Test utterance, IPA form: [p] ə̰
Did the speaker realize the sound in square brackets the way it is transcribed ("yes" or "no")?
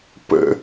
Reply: yes